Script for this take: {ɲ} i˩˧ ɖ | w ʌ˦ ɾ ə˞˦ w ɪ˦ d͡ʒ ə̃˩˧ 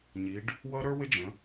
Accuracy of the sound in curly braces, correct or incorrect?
correct